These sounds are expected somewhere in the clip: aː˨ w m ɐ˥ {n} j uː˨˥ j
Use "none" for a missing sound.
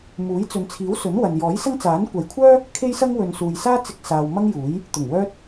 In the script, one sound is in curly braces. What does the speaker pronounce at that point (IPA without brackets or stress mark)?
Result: ŋ